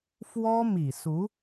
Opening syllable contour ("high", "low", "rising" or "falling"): high